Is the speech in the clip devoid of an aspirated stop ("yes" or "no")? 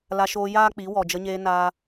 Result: yes